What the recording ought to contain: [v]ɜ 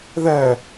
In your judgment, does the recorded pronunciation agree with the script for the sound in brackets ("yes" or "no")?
no